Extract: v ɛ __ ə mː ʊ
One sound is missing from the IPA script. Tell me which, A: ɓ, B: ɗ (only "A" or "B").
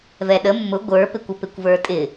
B